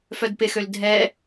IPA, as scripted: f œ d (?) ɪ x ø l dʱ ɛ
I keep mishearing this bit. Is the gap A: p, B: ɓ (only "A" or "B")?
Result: A